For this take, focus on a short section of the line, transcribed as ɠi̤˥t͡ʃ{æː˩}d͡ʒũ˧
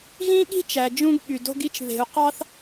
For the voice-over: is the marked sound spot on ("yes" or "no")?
no